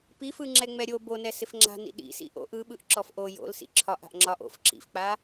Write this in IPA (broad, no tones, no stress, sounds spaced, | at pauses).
p i f ɯ ŋ͡ǁ ɛ ŋ͡m ɛ ɾʲ o b o n ɛ s ɪ f ŋ͡ǁ a̤ n ḭ ɗ ḭ s ḭ ʔ o̰ ʔ ɯ ɓ ɯ ʔ ǁ ɔ f ʔ o j o̰ l s ḭ ǁʰ ɒ ʔ a̤ ʔ ŋ͡ǁ ɒ ʔ o̰ f ǁ ḭ f k͡p a